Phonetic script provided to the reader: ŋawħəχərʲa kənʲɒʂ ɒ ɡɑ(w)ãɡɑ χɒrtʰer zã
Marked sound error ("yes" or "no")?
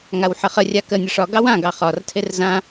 no